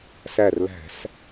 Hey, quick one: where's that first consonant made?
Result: tongue tip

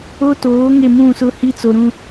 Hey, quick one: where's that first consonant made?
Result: tongue tip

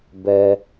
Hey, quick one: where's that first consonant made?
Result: lips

